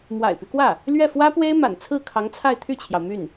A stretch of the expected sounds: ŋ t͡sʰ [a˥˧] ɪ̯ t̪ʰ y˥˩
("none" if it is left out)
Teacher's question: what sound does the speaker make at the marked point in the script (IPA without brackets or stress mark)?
a˥˧